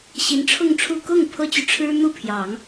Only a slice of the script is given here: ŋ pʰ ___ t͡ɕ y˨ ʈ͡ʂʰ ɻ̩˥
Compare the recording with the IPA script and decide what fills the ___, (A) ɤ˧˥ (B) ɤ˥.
B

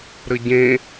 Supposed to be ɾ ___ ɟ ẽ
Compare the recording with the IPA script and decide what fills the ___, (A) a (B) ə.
B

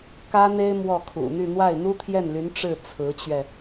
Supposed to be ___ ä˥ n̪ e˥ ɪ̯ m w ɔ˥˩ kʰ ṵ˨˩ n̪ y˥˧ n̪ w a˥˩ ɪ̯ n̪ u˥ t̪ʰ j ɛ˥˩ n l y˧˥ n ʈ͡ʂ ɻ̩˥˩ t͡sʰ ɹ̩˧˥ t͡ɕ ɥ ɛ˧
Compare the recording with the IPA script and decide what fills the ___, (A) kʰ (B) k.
B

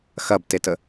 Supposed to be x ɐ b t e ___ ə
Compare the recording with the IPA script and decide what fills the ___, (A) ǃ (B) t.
B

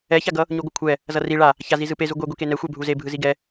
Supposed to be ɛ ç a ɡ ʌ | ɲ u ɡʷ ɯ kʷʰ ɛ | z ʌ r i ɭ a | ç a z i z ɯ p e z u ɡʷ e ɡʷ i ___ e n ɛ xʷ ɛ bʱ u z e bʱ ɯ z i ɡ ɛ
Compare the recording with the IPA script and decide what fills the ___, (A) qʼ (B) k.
B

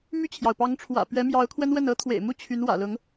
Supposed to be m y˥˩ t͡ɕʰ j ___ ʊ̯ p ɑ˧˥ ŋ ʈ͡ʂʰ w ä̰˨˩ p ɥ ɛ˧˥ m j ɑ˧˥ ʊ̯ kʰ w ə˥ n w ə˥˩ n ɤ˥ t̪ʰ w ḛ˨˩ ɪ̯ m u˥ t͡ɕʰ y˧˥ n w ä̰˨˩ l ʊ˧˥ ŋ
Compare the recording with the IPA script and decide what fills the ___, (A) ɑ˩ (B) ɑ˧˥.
A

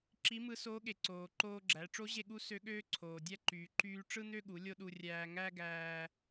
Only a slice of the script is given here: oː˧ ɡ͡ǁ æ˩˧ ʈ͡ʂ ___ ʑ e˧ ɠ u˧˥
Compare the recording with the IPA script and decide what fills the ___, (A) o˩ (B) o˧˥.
B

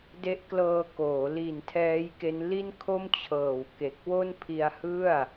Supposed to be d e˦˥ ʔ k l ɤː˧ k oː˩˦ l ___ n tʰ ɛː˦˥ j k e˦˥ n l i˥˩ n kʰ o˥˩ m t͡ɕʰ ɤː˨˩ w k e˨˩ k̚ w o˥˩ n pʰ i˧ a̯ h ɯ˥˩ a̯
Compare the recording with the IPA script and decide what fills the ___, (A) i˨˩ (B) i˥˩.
A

